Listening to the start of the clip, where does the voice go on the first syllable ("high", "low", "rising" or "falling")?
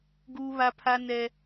high